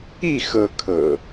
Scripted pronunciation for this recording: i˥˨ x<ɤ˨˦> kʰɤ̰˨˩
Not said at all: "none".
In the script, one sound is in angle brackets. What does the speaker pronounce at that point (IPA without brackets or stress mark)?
ɤ˦